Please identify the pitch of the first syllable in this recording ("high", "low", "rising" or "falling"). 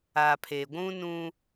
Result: low